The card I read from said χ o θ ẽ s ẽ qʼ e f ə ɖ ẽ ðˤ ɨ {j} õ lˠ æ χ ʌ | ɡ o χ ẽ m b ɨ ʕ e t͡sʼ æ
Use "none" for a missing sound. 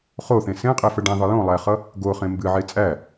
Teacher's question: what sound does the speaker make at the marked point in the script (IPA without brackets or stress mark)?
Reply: j